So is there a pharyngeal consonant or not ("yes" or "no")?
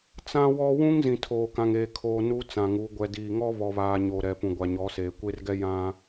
no